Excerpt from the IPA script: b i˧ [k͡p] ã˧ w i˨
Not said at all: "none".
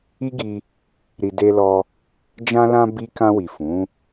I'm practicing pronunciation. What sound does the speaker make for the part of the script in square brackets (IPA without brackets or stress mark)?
k